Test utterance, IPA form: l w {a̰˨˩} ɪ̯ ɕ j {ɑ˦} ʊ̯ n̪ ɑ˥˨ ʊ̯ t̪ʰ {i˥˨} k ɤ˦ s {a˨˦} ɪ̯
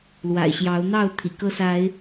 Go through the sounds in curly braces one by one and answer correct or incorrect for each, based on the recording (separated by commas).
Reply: correct, incorrect, incorrect, correct